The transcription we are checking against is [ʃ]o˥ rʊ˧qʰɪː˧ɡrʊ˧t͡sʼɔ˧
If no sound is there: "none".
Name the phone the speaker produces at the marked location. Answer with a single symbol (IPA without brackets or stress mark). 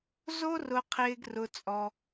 z